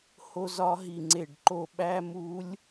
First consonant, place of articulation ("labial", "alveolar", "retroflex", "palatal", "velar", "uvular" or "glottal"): glottal